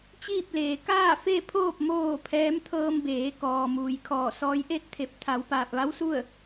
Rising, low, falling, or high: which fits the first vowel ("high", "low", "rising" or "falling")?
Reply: falling